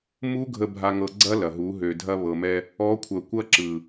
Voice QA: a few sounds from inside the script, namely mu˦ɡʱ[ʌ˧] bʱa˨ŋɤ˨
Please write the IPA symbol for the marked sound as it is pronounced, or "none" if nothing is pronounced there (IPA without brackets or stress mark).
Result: ə˧